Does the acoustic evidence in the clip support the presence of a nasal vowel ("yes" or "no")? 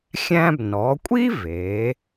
yes